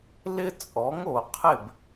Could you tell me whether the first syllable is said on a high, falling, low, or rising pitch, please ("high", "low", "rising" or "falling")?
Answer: high